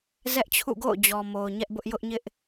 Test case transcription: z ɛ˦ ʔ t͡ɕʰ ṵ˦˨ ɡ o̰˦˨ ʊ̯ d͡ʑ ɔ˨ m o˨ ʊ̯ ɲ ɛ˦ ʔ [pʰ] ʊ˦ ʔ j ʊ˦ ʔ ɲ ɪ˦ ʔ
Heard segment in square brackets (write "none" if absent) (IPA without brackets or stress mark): b